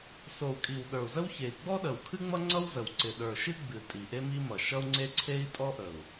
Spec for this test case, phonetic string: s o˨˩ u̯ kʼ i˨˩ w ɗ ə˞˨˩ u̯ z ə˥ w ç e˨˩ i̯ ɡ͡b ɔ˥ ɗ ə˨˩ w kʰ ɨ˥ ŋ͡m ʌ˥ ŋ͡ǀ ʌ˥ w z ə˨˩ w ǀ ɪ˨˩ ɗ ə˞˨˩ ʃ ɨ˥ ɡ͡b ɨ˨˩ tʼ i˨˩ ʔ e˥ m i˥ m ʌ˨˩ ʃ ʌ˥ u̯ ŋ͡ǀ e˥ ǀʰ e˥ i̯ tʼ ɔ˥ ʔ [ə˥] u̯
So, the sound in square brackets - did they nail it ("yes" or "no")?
no